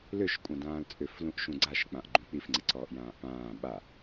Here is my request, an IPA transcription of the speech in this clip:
l ʏ ʃ kʷʼ ã d ãː l t͡sʼ ʏ f l ũ ʔ ʃ ũ ɡ͡ǀ a ʃ k͡p ã ʔ ɡ͡ǃ ũ k͡p i f ŋ͡ǀ ɪ ǀ ɔː ʔ j ãː ʔ p ãː ɓ a

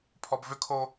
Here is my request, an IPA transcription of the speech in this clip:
pʰ ɔ b v ʏ kʰ o

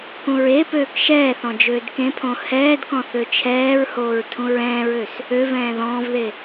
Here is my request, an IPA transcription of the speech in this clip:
k ũ ɹ e p øː k ʃ ɛː θ ɔ̃ d͡ʒ øː d k ẽ pʰ õ h ɛː d k ɔ̃ θ ø t͡ʃʰ ɛː ɹ h oː ɹ tʰ ũ ɹ ɛ̃ː ɹ ø s | ø v ɛ̃ː ð ɔ̃ː v ð e

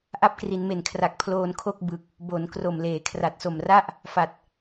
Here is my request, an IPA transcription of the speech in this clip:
ʔ a˦˥ p̚ k r i˩˦ n m e˨˩ n kʰ r a˨˩ k̚ pʰ l oː˧ n kʰ o˥˩ k̚ b ɯ˨˩ k̚ | b o˩˦ n k r o˨˩ m l eː˩˦ kʰ r a˨˩ t̚ s o˨˩ m r a˥˩ ʔ | f a˨˩ t̚

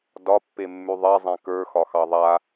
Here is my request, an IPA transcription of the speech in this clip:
d ɒ pː e mː ʉ ðˤ ɛ zˤ ẽ k ə˞ x ɒ x ɑ ðˤ a

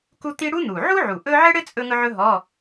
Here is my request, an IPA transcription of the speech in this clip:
k u˥ t̪ i˥ ɽ u˥ n̪ u˨˩ ʕ u˥ ʕ u˨˩ ʔ ɵ˥ ʕ ɘ˥ ɽ ɘ˥ t͡sʼ ɵ˥ ŋ ɵ˥ ʕ ɵ˥ ɦ ɔ˧˥˧

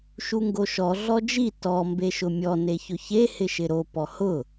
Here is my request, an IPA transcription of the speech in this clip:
ʃ u ŋ ɡ o ʃ ɔ ɮ ɔ d͡ʒ i t ɔ m b e ʃ ʊ mʲ ɔ n e ç ʊ ç e h ɪ ʃ ɪ ɾ o p ɔ h ʊ

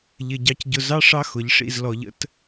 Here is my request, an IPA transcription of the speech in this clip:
ʎ ɪ˨ ɟ ɑ˨ c ɟ ʊ˨ z ɑ˦ ʂ ɑ˦ x ʊ˨˦ ʎ ʂ ḭ˦˨ z l ɔ˨ ʎ ə̰˦ t

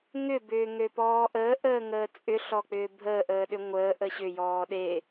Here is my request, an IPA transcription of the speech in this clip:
ŋ ʏ b ʏː ŋ ø p ɔː ʔ əː ʔ əː ŋ əː t͡sʼ ʏ ɬ ɔ k͡p ʏː bʱ əː ʔ əː ɗ ʏ ŋʷ əː ʔ ə ɕ ʏ j ɔː ɗ e

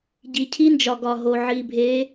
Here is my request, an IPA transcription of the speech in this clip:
ɟ i˨ cʰ i˦ n d͡ʒ ɒ˨ ɡ ɒ˨ ɦ o˨ ʕ i˨ bʱ e˨˦

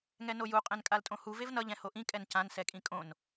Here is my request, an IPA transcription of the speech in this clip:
ŋ ɛ n o j u qʼ ẽ n kʼ a l tʼ õ h u v e v n ʌ ʎ ɛ̃ h o ʔ ĩ kʼ ɛ n c ã n s ɛ kʼ ĩ kʼ õ n

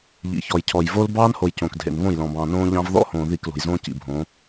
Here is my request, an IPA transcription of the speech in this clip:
ʎ ḭ˨ ç ɔ˨ j cʰ ɔ˨ j v o˦ l b ɑː˦ n h o˨ j c õ˨ k dʱ ḛ˨ n β õ˦˨ j l ɔ̃˨ b ɑ̃ː˨ n õː˦ ʎ ɑ̃˦ v ð ɔ̰˦ h õː˨ ð i˦˨ k l o̤˨ j z õː˦ c ḭ˨ bʱ õ˨˦

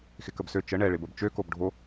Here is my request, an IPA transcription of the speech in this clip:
x ɪ k ə b s ø t͡ʃ ə ɳ ɛ ɭ ɪ b ə b t͡ʃ ø k o b ɖʱ o

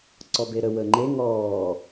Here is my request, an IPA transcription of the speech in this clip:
ǀ ɔ b e ɾ ə w əː ŋ͡ǃ e ŋ ɔː

